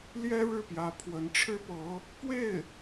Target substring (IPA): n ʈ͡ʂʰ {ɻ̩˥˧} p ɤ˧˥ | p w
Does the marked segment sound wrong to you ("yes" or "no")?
yes